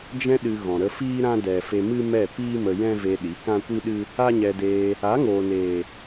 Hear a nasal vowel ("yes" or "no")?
yes